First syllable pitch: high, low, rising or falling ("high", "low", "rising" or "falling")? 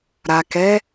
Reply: low